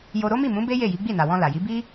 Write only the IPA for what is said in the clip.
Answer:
j o˧ ɾ o˦ m i˦˨ m ũ˨˦ b e˦ j e˦˨ j i˨˦ ɡ͡b i˦˨ n a˨ w ɔ̃˧ l a˨ j i˨˦ b i˦

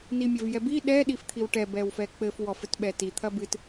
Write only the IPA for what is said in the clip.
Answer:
n i mʲ ɐ v j ɛ b i ɗ ɛ ɗ i f t̪ʰ i w ʈ ɛ b ɛ w f ɛ k͡p ɘ f w ɔ f ɘ t ɓ ɛ t i t̪ʰ ɐ b ɨ t

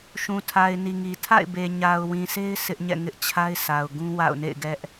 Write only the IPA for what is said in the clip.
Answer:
ʃ ũ˨ tʰ a˨ ɪ̯ n i˨ ŋ i˨ tʰ a̰˦˨ ɪ̯ b e˨ ɲ a˨ ʊ̯ w ĩ˨ s e˦ ɪ̯ sʰ ɪ˦ ʔ ɲ ɛ̰˦˨ ŋ ɪ˦ ʔ t͡ɕʰ a˦ ɪ̯ s a˨ ʊ̯ ɡ ũ˦ w a̰˦˨ ʊ̯ n ḛ˦˨ ɪ̯ ɡ ɛ˦ ʔ

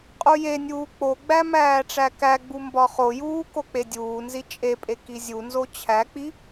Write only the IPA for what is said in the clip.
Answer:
qʼ u j e nʲ uː k͡p o ɡ͡b æ m æː ʈ͡ʂ æ k æ ɡ͡b u m b ɒ χ o j uː k o k͡p e dʲ uː n z i t͡ʃʼ e pʼ e k i zʲ u n z o t͡ɕʰ æ k͡p i

